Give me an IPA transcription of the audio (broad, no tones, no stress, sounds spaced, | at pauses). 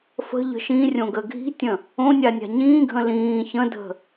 f ə̤ ʎ ə̤ ʃ ĩ rʲ õ ɡ ə ɡʱ i̤ tʲ ə̃ | õ nʲ a nʲ a̤ ɲ ĩː ɡʱ ə̃ l ĩː ç ə̃ dʱ ə̤